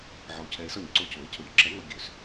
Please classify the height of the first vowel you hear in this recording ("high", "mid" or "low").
low